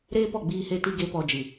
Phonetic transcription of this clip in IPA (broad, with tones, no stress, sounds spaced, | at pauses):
ɾ eː˦ p ɔ˦˨ ɡ͡b iː˦ h e˦ t i˦ ɡ e˦ p ɔ˧ d͡ʒ ɨ˨